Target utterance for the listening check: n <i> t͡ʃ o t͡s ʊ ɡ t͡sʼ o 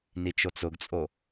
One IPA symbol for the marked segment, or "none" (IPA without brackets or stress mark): i